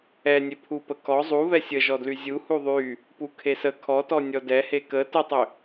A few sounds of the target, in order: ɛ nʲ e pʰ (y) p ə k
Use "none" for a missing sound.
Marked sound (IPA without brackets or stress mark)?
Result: u